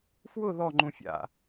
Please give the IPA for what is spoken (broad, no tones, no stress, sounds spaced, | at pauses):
f w ʊ ð ɔ ŋ͡ǃ ũ fʲ a̰